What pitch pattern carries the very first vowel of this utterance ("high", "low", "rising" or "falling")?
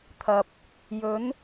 low